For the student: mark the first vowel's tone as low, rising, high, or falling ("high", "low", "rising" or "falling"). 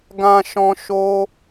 low